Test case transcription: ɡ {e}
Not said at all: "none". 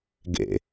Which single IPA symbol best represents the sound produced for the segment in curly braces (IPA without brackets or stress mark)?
ḛ